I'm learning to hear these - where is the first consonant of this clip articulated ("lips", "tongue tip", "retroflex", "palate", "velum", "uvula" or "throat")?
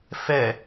lips